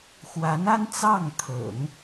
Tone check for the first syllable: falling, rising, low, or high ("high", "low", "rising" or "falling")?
rising